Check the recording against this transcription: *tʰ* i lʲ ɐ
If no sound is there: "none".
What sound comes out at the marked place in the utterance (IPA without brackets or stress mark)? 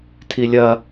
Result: tʰ